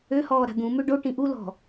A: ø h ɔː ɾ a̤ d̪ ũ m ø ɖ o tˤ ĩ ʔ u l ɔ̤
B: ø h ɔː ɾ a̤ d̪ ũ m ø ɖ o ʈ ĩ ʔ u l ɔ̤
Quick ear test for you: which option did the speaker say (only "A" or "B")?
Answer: B